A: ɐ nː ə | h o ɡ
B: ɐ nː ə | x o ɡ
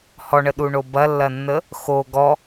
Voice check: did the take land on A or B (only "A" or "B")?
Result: B